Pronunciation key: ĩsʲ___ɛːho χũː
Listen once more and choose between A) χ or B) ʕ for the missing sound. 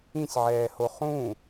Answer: B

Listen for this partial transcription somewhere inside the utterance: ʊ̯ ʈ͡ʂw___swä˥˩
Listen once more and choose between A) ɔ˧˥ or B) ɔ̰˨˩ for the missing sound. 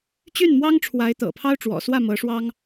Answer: B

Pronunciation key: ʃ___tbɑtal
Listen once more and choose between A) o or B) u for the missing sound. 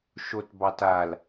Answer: A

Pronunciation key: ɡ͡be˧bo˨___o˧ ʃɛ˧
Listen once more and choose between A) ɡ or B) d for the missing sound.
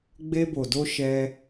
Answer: B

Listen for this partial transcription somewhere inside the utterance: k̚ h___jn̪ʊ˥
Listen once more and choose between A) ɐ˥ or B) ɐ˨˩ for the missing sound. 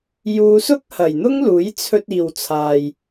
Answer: B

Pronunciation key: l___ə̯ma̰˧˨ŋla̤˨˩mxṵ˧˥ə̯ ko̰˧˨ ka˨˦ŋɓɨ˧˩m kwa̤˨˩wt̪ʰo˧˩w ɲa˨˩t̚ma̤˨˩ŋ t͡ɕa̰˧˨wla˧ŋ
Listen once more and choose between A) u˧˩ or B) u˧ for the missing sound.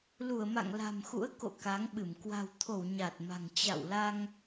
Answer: A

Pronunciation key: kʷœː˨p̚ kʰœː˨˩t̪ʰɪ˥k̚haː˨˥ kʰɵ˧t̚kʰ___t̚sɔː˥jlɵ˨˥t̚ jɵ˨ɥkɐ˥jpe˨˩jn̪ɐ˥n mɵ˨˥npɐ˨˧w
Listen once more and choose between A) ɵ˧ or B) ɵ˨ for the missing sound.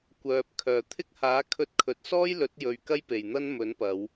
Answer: B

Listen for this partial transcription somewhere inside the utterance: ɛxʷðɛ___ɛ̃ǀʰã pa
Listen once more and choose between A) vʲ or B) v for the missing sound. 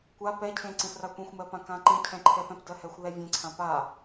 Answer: A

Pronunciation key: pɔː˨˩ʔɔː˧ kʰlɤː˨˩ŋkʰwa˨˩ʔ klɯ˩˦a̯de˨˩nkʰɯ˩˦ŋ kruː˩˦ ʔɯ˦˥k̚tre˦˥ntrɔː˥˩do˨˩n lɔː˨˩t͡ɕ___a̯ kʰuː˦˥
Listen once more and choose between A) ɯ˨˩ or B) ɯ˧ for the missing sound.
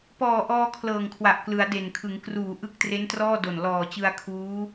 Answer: B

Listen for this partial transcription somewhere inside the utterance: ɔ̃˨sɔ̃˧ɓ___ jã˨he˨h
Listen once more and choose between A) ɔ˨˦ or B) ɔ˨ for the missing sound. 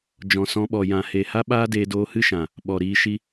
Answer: B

